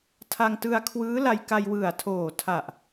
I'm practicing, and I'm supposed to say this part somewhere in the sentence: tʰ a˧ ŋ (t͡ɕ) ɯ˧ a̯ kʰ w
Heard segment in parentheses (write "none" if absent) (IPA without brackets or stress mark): t